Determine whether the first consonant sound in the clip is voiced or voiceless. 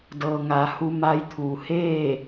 voiced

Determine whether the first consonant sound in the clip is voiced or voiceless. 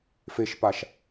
voiceless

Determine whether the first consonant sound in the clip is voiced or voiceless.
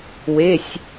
voiced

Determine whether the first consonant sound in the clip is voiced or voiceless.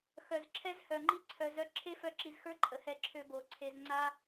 voiceless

